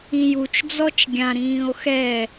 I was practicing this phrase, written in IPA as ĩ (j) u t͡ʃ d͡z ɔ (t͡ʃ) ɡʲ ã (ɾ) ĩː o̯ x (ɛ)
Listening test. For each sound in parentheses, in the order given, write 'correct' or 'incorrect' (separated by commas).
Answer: correct, correct, correct, correct